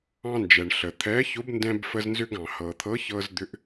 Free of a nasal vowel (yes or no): no